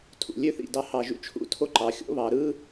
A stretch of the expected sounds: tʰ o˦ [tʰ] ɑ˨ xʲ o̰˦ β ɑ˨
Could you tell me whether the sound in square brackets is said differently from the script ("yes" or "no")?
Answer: yes